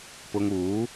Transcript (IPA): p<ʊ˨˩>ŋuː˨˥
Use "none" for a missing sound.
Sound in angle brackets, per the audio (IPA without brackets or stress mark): ʊ˧